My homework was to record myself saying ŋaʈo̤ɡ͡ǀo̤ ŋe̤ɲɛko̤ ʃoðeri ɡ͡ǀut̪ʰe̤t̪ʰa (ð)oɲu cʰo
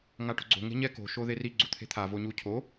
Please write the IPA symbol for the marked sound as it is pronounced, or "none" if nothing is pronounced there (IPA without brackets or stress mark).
v